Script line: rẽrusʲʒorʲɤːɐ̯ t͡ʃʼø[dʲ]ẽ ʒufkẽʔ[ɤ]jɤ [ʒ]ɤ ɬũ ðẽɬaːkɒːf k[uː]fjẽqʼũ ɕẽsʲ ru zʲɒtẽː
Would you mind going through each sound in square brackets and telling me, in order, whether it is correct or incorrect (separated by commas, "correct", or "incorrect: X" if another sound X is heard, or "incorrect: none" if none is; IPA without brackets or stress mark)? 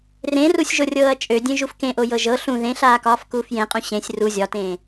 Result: correct, incorrect: o, correct, correct